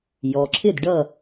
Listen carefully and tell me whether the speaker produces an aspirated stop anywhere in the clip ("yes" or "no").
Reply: yes